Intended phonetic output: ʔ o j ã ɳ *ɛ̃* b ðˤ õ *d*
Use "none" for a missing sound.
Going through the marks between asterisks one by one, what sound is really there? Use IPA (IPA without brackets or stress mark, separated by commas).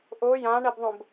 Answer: ɛ, b